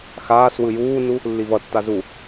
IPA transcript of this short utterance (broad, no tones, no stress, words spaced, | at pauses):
xaːs wɯjuːnu | lːivʌtːa zu